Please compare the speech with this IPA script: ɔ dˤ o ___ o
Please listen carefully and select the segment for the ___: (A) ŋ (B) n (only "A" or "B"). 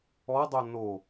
B